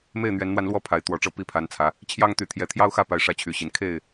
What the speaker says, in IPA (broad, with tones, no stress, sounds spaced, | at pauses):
m e˥˨ ɪ̯ n̪ ɥ ɛ˨˦ n n̪ w a˧ n l w ɔ˥˨ pʰ a˨˦ ɪ̯ t̪ w ɔ˨˩ ʈ͡ʂ ɤ˥˨ p i˥˨ pʰ a˨˦ n t͡sʰ ä˨˦ | t͡ɕʰ j ɑ˦ ŋ t̪ y˨˦ t̪ʰ j ɛ˨˦ t̪ʰ j ɑ˦ ʊ̯ x ä˥˨ p a˨˦ ɪ̯ ʂ ä˨˦ t͡ɕʰ y˨˩ ɕ i˨˦ n kʰ e˥˨ ɪ̯